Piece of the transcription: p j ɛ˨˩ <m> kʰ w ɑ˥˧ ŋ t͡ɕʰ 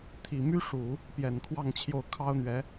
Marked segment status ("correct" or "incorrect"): incorrect